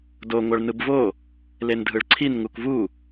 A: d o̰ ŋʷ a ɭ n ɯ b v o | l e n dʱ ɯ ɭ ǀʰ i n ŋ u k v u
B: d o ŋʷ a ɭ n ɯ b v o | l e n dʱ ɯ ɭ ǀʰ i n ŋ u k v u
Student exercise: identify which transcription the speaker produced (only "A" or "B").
B